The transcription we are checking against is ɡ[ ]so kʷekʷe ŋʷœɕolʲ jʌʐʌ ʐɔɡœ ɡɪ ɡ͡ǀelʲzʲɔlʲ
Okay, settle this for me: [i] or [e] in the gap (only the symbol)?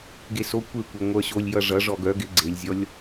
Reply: e